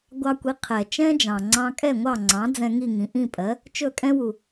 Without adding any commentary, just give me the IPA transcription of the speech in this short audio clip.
ɡʷɑ˧kʷi˩˥ qʰɛ˩ t͡ʃɛ̃˥d͡ʒɑ̃˩ŋ͡ǀɑ̃˧ kʼɛ˥˩ŋʷɑ˥˩ŋ͡ǀɑ̃˩˥ d͡zɛ̃˧ŋi˥˩ŋĩ˩ ʔĩ˥˩pʼɜ˩˥ | t͡ʃɵ˥˩kʼɛ̃˥ wu˩

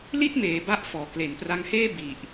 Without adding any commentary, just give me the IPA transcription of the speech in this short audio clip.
li˥˩t̚meː˩˦ ba˦˥ʔfɔː˩˦ kle˩˦npra˧ŋheː˥˩ bi˨˩ʔ

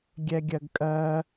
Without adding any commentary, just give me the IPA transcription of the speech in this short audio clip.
ɡʲɛɡʲɜɡkʼɜ

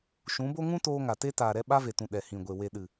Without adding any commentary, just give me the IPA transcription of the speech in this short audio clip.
ʃũ˨˦bo˦ ŋũ˦toː˧ ŋa˨te˧taː˨ ɾɛ˧ɓa˧ve˨tũ˨ ɗɛ˨hĩ˨ɡʷe˨ we˨ɗɨ˨

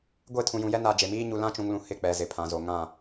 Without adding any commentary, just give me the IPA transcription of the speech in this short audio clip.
ɡʷe˦˨tʰũ˨jũ˨jɛ˦ na˨ d͡ʒe˨miː˦ ɲu˨lã˦t͡ʃũ˨ŋlũ˨ hɪ˦˨k͡pɛ˨ zɪ˨pʰã˨zo˨ ŋã˦˨

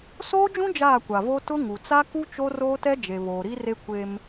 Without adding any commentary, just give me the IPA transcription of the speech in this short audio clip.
soː˦d͡ʒũ˦ d͡ʒaː˦˨kʷa˨vo˦ tʊ˦ŋu˨ t͡sa˦ku˦ t͡ʃo˦roː˦tɛ˦ d͡ʒe˨βoː˨ɾi˦re˦ kʷe˦m

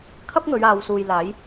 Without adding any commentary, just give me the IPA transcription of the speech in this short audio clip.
kʰɐ˥p̚ŋɵ˨˧ɥaː˨w suː˨jlaː˨˥j

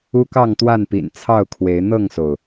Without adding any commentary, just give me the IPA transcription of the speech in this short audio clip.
u˦kɑ˥˨ŋt̪wa˥˨npḭ˨˩n t͡sʰɑ˥˨ʊ̯kʰwe˨˦ɪ̯ n̪ɤ˥˨ŋso˩ʊ̯

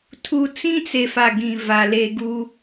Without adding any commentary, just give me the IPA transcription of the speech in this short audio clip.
tʰu˨ t͡sĩ˦t͡se˨fa˨ ɡĩ˨va˨le˦ ɡu˦

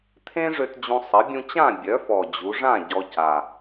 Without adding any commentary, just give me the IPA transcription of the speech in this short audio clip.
t̪ʰẽ˥ʐø˧t d͡ʑũ˧sˤə˩˥ bʲũ˧t͡ɕã˥˨ bʲœ˩˥fɔ˨˩ d͡ʑu˩˧ʐã˥˨ ɟɔ˧ca˨˩

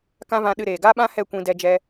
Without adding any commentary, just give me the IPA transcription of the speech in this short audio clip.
kã˦vã˧ɗɨ˧ɾeː˨ ɡa˦ɓã˦ hɛ˦˨kʷĩ˧ dɛ˧d͡ʒɛ˧

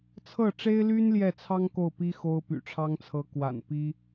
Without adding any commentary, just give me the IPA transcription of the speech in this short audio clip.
t͡sʰɤ˥˩ʈ͡ʂe˥ɪ̯ly˥n ljɛ˥˩t͡sʰɑ˥ŋ ko˥˩ʊ̯pi˥ xo˥ʊ̯py̰˨˩ʈ͡ʂʰɑ˥ŋt͡sʰɤ˧˥ kwa̰˨˩npi˥

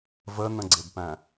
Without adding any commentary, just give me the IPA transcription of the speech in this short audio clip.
vənə̃ɡ͡ǀɪbpæ̃

